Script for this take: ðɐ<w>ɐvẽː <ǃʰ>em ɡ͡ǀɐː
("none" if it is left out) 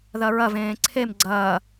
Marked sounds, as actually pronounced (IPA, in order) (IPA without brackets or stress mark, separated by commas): ɹ, ǀʰ